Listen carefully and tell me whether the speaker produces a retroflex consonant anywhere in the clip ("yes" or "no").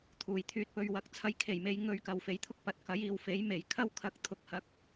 no